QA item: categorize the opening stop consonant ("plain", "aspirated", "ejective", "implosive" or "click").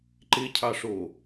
click